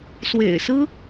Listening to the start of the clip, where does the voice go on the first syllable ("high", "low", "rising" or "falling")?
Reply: low